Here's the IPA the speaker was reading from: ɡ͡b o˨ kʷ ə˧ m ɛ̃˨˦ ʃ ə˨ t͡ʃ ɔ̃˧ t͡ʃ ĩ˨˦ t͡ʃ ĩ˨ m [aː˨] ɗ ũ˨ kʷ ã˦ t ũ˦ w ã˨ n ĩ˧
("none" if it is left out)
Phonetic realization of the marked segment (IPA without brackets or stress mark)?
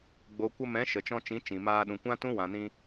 aː˧